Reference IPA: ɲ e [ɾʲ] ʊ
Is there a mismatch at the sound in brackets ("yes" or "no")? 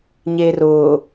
yes